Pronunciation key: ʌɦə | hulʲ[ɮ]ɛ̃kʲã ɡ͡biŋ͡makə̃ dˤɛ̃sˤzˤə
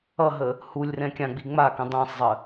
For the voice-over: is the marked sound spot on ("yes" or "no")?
no